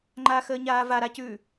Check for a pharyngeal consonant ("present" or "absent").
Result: absent